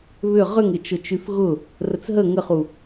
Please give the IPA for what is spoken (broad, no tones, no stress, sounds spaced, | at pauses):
β ʏ ʁ ʏ ŋ ɪ t͡ʃ ʊ t͡ʃ y f ɣ ʊ | r ə t͡s ɦ ə ŋ ə χ u